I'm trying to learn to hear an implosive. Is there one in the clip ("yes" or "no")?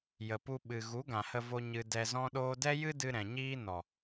yes